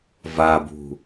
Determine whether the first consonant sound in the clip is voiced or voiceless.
voiced